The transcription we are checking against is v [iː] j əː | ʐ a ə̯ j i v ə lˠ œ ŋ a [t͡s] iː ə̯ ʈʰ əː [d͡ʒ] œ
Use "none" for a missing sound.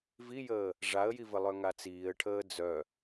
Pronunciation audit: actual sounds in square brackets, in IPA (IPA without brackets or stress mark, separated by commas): i, t͡s, d͡z